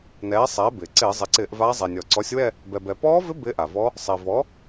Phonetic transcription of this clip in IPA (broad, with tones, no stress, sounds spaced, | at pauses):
n ɛː˩˥ sˤ ɛː˩˥ b ɪː˩ ǀ ɪː˧˩˧ zˤ ɪ˩˧ ǀ ɪː˧˩˧ ʔ v aː˧˥ zˤ ɛ˩ nʲ ɔ˩ ǀ ɔ˩˥ sʲ w ɛ˦˨ | b ɛ˩ b ɛ˩ p ɔː˧˥ v ɪ˧˥ b ɪː˧˥ ʔ a˩ v ɔ˧˥ | sˤ ɪː˩ v ɔ˩˥